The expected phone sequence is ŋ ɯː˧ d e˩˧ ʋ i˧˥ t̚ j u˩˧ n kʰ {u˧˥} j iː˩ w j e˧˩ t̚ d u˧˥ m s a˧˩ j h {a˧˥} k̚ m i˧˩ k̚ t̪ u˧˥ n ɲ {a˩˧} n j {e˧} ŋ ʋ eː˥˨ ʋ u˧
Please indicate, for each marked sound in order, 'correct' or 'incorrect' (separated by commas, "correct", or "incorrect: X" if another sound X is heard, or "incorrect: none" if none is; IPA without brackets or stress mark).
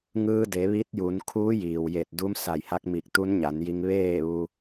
incorrect: uː˧˥, correct, correct, incorrect: i˧